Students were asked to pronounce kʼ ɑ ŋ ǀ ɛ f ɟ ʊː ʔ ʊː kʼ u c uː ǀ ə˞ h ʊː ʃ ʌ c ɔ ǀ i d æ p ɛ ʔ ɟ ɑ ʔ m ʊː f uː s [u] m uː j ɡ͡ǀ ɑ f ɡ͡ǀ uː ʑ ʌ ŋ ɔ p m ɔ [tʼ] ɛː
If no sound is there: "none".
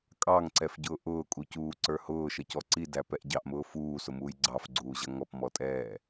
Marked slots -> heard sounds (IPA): ʊ, tʼ

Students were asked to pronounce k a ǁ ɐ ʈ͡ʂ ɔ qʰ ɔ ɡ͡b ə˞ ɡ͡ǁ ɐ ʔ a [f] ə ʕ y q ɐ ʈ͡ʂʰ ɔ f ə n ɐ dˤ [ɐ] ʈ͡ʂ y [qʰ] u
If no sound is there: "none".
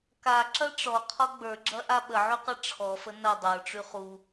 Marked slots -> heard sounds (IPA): ɓ, ə˞, χ

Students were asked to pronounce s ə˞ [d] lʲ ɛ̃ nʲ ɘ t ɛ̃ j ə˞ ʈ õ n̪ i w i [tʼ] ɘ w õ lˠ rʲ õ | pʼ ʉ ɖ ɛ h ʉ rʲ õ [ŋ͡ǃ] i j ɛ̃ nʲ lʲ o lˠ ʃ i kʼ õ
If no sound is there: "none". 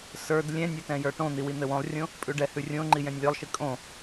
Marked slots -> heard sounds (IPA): d, n̪, ŋ͡ǃ

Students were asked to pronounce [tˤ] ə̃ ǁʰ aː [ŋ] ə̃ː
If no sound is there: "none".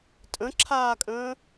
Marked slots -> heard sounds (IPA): tʼ, kʼ

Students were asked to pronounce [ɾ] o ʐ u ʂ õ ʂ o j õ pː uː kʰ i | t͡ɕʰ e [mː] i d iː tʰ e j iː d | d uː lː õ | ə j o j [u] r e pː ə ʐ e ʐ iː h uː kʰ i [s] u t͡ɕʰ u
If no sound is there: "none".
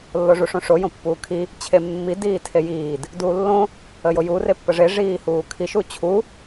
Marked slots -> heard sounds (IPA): lː, mː, u, ʃ

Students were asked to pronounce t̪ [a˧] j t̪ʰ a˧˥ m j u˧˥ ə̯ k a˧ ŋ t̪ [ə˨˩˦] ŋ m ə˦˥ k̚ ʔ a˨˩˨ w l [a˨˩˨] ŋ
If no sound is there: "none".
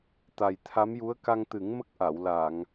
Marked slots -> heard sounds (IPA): a˨˩, ɨ˨˩˦, a˨˩˨

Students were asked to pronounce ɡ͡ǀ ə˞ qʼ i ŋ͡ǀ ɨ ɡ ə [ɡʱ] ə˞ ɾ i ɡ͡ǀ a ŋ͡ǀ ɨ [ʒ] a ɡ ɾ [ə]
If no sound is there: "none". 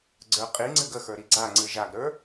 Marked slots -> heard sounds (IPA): x, ʒ, ə˞

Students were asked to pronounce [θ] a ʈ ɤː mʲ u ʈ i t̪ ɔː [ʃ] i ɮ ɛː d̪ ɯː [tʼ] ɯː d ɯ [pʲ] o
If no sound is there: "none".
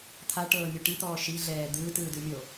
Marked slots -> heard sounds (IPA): t̪ʰ, ʃ, t, mʲ

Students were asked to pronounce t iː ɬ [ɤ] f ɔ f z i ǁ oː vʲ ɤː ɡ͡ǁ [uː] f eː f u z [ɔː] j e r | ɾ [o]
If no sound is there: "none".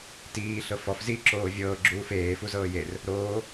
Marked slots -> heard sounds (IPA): ɤ, uː, ɤː, oː

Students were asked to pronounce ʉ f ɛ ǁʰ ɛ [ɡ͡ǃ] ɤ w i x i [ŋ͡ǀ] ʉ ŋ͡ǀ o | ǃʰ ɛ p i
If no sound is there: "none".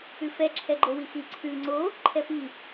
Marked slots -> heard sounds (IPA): ɡ͡ǃ, ǀʰ

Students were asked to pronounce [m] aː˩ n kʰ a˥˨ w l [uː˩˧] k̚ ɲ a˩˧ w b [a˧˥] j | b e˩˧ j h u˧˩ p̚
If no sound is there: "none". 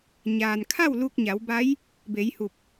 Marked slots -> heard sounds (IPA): ɲ, uː˧, a˧˥

